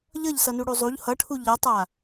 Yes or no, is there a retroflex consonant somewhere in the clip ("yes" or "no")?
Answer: yes